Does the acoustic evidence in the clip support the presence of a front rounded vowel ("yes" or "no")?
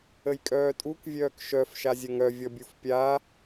yes